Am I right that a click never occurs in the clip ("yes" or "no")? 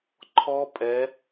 no